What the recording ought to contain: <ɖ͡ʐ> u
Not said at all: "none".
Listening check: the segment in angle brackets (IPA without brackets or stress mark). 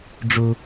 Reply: ɖ͡ʐ